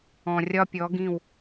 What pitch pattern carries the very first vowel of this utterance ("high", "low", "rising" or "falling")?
low